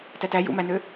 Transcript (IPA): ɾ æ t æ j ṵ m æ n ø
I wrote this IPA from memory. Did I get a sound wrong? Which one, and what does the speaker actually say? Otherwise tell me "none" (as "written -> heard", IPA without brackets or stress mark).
ɾ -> t